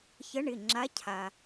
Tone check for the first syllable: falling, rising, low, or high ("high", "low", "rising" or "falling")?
rising